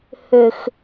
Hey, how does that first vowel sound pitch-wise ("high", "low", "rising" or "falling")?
high